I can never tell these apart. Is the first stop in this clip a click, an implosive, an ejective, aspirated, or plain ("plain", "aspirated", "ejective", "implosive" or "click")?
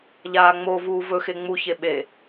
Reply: implosive